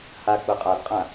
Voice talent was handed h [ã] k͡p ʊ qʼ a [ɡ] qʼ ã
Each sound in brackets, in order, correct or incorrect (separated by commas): incorrect, incorrect